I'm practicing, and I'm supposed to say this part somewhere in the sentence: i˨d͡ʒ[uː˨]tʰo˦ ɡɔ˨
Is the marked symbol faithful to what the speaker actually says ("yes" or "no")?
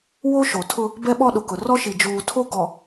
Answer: yes